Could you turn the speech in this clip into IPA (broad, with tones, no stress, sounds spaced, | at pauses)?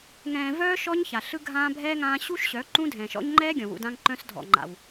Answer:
ŋ ɛ̃ː˨ v œː˧ ʃ ɔ˦ ɲ ç a˨ ɬ ɯ˧ ɡʱ ãː˧ bʱ ɛː˧ ŋ ãː˧ ɕ u˦ ʃ ɕ œ˨˦ ǃ ũ˦ dʱ ɛ̃˨ ʃ ɔ̰˦ ɲ ŋ͡ǃ ɛː˦ ɡʲ ɔ̃˨ w ṵ˧ d ã˦ ŋ ǃ œ̃˦ s dʱ ɔ̰˨ ŋ͡ǃ a̰˨ w